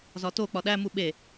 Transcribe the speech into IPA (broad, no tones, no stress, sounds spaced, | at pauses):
z ɒ t o k͡p ɒ ɗ æ m u ɓ e